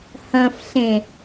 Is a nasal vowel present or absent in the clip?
present